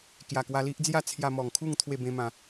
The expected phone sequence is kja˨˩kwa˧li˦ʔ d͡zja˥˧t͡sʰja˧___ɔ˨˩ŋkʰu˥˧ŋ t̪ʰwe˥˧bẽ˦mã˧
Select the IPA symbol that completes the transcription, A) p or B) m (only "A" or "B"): B